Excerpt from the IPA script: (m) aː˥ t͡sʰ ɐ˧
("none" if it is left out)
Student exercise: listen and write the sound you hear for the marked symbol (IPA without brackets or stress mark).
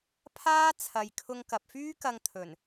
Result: pʰ